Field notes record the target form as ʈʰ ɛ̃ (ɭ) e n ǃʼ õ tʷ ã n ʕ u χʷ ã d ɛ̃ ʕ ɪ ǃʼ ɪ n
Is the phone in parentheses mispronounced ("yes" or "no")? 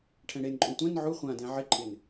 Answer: yes